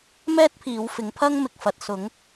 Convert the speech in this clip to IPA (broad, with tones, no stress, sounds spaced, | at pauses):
m ɛː˥ t̚ pʰ iː˨˧ w f ɪ˨˧ ŋ pʰ ɐ˥ ŋ m ɪ˨ k̚ f ɐ˨ t̚ s ʊ˨˧ ŋ